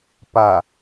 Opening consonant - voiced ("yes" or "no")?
no